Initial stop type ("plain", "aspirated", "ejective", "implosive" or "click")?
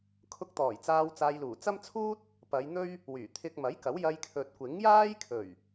aspirated